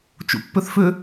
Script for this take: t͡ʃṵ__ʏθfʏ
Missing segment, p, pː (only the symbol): pː